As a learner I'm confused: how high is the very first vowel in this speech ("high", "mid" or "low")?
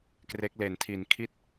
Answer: mid